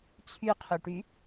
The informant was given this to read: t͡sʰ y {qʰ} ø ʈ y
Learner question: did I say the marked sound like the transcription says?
yes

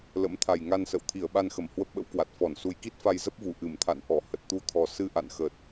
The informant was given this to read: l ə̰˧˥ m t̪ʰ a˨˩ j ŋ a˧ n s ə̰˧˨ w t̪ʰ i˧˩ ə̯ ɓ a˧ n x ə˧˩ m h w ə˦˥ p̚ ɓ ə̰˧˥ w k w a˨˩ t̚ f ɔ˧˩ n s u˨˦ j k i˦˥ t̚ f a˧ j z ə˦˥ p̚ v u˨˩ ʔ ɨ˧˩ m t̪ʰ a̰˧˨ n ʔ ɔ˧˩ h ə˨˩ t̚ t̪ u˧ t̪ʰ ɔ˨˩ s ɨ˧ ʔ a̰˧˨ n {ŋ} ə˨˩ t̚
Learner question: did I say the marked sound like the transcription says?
no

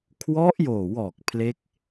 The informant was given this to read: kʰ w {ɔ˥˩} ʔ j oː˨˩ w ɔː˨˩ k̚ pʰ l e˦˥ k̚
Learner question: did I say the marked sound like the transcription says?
no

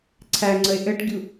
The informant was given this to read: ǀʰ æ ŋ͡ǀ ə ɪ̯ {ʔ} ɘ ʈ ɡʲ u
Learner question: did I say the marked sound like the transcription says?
yes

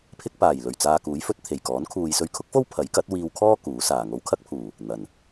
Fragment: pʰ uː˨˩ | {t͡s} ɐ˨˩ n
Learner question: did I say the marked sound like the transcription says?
no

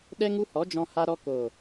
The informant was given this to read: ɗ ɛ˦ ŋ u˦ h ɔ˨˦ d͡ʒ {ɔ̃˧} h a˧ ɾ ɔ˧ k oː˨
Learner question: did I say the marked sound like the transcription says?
yes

